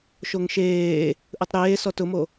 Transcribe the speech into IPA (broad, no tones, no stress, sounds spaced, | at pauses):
ʃ o ŋ ʃ eː | ʔ ɯ tˤ ɾ eː s ɔ t ʊ m o